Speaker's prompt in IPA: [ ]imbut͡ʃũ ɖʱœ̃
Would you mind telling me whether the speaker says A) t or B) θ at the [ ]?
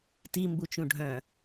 A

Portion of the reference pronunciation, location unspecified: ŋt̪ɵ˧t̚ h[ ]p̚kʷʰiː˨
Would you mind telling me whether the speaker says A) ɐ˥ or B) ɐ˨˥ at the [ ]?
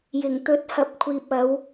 B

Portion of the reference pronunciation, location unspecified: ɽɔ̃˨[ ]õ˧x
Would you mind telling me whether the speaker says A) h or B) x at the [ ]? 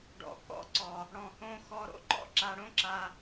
A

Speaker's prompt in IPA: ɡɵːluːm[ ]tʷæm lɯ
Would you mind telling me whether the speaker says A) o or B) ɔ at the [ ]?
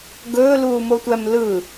A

